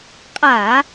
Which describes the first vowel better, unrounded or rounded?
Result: unrounded